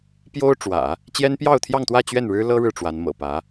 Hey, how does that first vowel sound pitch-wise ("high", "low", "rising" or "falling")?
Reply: high